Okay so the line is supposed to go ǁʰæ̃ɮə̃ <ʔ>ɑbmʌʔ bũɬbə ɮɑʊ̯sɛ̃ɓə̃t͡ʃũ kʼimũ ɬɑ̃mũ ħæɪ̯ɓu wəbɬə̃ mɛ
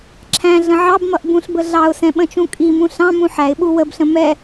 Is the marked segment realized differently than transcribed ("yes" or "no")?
yes